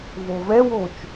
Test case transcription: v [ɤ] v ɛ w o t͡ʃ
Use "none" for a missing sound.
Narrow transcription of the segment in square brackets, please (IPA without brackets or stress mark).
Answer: o